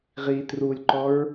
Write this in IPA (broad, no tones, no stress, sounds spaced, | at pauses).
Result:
ʁ i t r u lʲ ǃ ɔ ɹ